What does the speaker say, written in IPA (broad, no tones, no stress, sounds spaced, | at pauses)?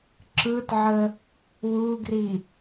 ǁ ɯ t ʕ ə | w u ɡ r i